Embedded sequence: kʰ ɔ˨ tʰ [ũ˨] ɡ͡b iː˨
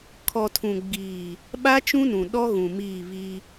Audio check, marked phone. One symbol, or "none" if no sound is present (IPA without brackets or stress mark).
ũ˨